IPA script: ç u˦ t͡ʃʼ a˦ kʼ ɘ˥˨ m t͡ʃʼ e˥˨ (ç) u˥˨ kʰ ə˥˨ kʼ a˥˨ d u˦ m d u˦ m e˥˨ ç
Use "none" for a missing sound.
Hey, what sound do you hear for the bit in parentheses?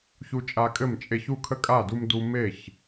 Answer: ç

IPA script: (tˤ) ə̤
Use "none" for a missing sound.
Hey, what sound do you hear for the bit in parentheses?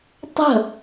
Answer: tˤ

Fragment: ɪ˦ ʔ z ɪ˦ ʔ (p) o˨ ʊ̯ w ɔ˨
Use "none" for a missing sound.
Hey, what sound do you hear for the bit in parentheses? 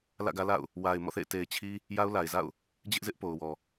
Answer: p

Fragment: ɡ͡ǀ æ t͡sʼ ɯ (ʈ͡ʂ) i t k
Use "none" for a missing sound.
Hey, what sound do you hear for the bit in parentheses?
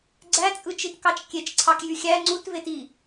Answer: t͡ʃ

